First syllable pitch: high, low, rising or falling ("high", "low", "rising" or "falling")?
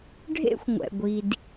high